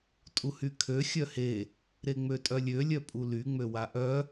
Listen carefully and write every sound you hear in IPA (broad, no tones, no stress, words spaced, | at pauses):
tʼuhykʰø xʲœhe | ɾeŋ͡møtʼœlʲø lʲœpʼuly ŋ͡møwaʔœ